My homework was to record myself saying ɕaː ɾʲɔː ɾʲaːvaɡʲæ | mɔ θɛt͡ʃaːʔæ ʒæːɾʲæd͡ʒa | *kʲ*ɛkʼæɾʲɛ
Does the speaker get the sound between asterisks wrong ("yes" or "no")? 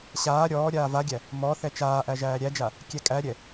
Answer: no